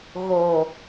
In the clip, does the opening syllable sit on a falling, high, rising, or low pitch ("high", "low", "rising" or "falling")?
low